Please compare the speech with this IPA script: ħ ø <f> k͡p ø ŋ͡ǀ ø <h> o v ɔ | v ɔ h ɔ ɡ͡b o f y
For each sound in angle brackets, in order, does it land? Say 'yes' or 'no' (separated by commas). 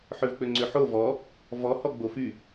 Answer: no, no